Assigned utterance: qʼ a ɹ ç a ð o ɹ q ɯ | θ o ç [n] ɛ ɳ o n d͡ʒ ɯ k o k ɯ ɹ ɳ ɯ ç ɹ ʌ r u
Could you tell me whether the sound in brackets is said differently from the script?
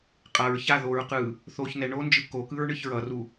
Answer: no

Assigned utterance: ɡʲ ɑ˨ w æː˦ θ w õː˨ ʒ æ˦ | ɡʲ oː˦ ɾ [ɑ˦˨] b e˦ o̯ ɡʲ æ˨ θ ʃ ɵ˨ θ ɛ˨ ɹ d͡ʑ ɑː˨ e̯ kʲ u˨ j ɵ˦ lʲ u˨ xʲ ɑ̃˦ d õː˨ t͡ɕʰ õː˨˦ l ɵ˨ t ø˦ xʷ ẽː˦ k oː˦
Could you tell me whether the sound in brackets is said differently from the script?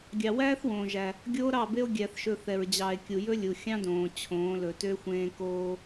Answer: no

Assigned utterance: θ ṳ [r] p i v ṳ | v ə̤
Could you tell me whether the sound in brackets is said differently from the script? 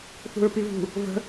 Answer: yes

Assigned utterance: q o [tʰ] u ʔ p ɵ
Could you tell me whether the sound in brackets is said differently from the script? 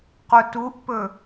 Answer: yes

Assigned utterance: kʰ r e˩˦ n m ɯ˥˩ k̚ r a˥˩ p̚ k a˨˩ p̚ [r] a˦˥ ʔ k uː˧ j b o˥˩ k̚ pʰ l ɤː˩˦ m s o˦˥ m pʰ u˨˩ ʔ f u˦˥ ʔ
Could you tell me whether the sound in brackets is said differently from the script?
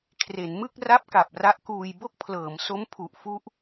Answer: no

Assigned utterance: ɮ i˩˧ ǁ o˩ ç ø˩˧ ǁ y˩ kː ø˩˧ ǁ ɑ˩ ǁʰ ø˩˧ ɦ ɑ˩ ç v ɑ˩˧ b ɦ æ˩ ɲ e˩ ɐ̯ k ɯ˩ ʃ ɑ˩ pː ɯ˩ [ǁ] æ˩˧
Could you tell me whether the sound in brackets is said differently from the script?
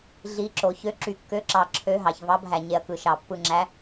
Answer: yes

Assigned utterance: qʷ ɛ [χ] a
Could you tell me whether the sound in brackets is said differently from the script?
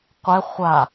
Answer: yes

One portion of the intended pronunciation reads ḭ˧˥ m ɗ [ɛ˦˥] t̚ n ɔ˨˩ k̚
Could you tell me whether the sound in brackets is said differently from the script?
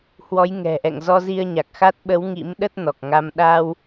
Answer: yes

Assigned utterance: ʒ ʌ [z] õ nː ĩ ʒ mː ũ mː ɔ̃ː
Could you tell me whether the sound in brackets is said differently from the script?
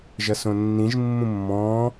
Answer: yes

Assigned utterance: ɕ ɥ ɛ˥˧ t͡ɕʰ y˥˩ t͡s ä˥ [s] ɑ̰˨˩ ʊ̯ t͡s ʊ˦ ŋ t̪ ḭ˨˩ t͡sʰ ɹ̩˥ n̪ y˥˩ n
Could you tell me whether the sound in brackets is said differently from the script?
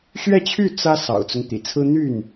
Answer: no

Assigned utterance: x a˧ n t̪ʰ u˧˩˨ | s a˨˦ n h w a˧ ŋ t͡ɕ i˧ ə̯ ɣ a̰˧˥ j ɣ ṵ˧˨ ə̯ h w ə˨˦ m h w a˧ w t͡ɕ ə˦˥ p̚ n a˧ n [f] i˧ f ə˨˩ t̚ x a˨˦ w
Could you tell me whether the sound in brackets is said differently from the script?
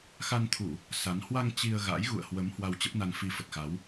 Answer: no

